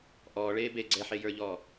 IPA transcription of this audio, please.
ʔ ɔː ɭ eː b e ɡ͡ǀ ɛ ħ e j ə˞ ʎ ɔː

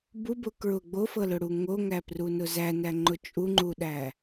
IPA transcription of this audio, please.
b u b ʊ k ɹ ʊ ɡ͡b o f ɤ l ʊ ɽ u ŋ o ŋ æ p r u n ʊ z æ n æ ŋ͡ǃ ʊ t͡ʃʼ u ŋ͡ǃ u ɗ æ

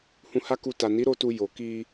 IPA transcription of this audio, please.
h ũ˧ h a˦ k u˧ t a˨ n i˨˦ ɾ o˧ t u˧ j o˨ k i˧

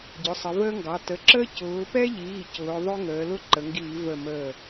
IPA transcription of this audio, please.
ɟ ʊ˩˧˩ sˤ ə˩˧ v əː˦ ŋ ɡ ɑ˩˧˩ t ə˩˧˩ ǁ əː˦ c ʊː˩˧ p ɛ˦ ʎ iː˩˧˩ c ʊː˩˧ ðˤ ʊ˦ ŋ əː˩˧ l ʊ˦ ǃ ə˩˧ ŋ ɡ iː˧˩˧ v ə˧˩ m əː˧˩

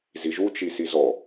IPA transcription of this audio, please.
z i ʒ u t͡ʃ i s i z ɔ

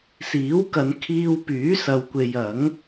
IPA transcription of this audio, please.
s iː˨˥ w k ɐ˨˧ n kʰ iː˧ w p yː˨˥ s ɐ˧ w kʷ e˧ j ɐ˨˥ ŋ

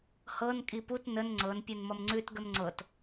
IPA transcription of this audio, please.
h ɤ n kʼ i p u t n ə n ŋ͡ǀ ɤ n pʲ u n m ʌ m ŋ͡ǀ ʉ t ɡ ə m ŋ͡ǀ ɤ t

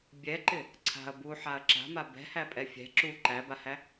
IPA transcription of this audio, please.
bʲ ɛ ǃ ɪ | ǀʰ a̤ ɐ̯ b u ħ a ɐ̯ ǁ a̤ m a b ɛ̤ h æ pʼ ɛ fʲ ɛ̤ ǁ u ǃ æ b a h æ

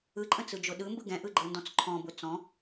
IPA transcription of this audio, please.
ɯ ǃʼ ə̃ t͡s ɯ d͡ʒ ʊ ɗ ɯ m b ɯ ɡ ɛ̃ ʔ ɯ ɡ͡ǃ ɤ n d ɔ̃ t͡s ǃʰ ɔ̃ b ʊ t͡s ɔ̃

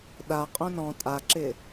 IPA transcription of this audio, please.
ɗ a qʼ õ n ɔ̃ tʼ a ǁ ɪ

